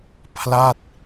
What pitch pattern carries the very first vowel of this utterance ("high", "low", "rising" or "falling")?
falling